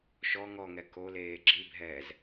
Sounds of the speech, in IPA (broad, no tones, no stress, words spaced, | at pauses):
ʃɔ ŋɔŋɛ koleː ɡ͡ǁibʱɛːz